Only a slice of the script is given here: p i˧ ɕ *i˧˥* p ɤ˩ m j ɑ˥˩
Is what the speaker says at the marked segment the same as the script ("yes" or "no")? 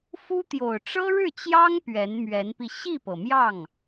no